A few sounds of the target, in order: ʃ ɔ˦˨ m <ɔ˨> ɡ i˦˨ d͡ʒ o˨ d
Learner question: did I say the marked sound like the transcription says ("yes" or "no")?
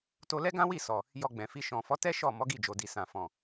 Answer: no